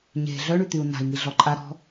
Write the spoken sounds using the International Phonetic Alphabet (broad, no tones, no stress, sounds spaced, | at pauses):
ɲ e̤ ɮ œ ɳ y t̪ y u̯ n a̤ i̯ ŋ i ɮ ɔ ǃʼ a ɾ ɔ̤